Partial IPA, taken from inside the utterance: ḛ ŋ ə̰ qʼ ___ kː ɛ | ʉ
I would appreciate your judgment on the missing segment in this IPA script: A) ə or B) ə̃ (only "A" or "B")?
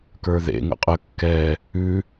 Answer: A